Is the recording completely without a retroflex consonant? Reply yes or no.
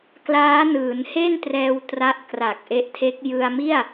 yes